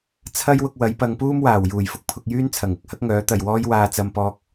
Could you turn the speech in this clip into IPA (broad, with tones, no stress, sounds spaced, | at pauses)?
t͡sʰ ɐ˥ j w ʊ˧ k̚ w ɐ˨˥ j p ɐ˨˧ ŋ p uː˥ m w aː˨˩ w j uː˨˩ j f ʊ˧ k̚ pʰ ʊ˧ k̚ j yː˥ n t͡sʰ ɐ˨˩ ŋ ɪ˨˥ k̚ h ɐ˥ k̚ ŋ œː˨˥ t̪ ɐ˨ j w ɔː˥ j w aː˧ t͡s ɐ˧ m p ɔː˧ k̚